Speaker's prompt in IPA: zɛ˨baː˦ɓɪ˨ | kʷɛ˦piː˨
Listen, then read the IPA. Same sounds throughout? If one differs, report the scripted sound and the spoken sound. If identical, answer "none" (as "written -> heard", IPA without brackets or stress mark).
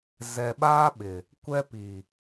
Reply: b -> ɓ